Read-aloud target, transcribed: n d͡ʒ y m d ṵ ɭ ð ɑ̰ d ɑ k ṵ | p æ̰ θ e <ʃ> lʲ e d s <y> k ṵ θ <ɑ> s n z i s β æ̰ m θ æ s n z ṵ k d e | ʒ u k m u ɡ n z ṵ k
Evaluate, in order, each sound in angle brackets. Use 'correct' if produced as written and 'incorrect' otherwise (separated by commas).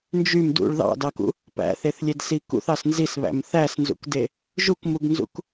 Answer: incorrect, incorrect, correct